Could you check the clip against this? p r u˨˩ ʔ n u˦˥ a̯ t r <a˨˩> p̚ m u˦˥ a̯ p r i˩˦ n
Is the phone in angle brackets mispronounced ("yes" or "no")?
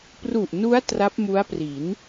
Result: yes